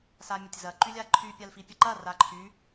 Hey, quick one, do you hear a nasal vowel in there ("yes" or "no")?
no